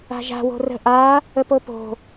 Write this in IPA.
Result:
a̤ ʒ a̤ w o̤ r ə̤ ʔ a | ə p o p o̤

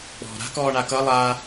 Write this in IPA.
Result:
k͡p ɔ̤ ɾ a̤ k ɔː ɳ a k ʌ lˠ a

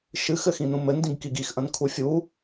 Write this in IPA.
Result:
ʃ ɨ x ɘ x ĩ n ũ m ɘ n d ĩ ɡ k i ɡ i x ʔ ɐ̃ n kʰ u fʲ u

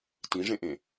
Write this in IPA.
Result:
t ĩ ʐ ẽ ʔ ẽ

